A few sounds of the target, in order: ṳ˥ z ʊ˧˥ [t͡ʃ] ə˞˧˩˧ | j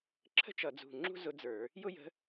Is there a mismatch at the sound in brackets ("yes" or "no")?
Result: yes